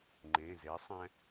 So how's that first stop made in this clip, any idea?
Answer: click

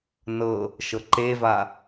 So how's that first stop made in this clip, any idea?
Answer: click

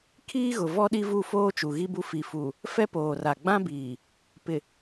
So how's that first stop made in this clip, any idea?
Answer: aspirated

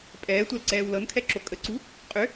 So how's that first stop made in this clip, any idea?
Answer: ejective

